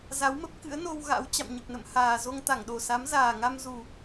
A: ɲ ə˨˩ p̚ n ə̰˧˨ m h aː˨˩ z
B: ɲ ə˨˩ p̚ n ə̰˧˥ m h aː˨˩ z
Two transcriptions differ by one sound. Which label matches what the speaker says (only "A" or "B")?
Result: A